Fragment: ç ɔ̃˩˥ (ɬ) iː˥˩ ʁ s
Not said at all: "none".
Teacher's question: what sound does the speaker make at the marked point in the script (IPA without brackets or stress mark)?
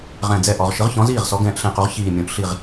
z